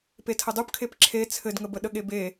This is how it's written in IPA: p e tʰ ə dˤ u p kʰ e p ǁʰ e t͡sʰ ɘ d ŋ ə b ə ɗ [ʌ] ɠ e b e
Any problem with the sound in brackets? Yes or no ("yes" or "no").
yes